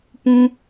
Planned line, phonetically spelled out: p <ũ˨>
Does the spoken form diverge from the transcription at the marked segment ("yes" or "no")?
yes